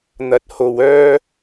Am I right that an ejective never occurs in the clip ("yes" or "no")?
yes